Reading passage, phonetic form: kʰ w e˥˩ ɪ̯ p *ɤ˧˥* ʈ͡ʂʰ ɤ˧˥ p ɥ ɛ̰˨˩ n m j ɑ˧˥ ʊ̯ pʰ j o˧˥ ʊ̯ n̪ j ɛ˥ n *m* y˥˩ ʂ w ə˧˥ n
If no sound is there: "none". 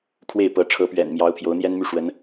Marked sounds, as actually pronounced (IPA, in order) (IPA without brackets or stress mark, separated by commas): ɤ˧˥, m